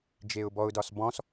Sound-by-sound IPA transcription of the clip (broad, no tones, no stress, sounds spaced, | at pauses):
d͡ʒ e ʊ̯ b ɔ ʊ̯ d ɒ s b ɔ̃ s